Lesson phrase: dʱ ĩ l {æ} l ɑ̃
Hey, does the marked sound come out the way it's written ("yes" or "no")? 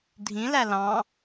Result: yes